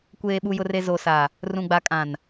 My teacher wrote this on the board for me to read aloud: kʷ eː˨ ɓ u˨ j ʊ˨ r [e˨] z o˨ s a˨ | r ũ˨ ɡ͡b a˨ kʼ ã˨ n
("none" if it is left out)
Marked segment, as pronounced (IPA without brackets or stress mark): e˨